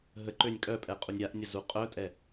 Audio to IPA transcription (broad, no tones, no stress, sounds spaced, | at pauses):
ɦ ə ǃ ø nʲ kʼ œ pʼ ɛ qʼ u nʲ ɾʲ a ʔ nʲ ə z u qʼ œ tʼ ɛ